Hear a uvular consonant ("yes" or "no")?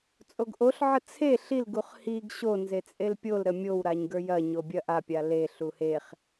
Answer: yes